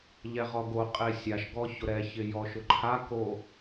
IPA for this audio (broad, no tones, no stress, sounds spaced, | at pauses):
ʎ ɛ ʁ ɔ ɡ o qʼ e sʲ a ʃ ɡ ɔ ç ʊ ɾ ɛ ç ɪ j ɔ ʃ ʊ ǃʰ a k o